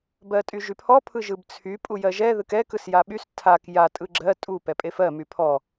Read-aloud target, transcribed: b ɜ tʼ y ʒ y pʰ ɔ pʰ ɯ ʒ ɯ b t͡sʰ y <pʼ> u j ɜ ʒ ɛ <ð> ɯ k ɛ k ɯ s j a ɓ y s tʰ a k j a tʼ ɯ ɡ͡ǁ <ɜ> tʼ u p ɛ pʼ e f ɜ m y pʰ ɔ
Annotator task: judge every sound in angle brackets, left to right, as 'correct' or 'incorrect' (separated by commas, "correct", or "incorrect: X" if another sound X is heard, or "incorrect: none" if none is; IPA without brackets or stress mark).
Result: correct, correct, correct